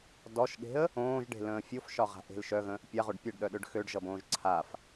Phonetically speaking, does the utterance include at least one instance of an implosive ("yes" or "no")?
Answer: yes